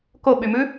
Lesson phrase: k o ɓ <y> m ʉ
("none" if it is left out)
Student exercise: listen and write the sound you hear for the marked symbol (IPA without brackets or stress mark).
y